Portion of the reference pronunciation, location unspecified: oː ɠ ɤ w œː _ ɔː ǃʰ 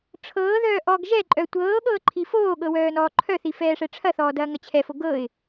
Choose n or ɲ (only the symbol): n